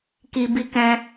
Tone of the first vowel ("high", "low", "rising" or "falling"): low